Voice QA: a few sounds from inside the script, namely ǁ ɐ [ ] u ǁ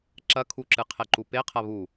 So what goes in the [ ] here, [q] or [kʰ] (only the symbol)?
kʰ